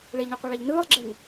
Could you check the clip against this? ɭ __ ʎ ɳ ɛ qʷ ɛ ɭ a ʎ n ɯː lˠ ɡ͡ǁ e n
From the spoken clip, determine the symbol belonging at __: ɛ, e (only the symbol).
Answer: e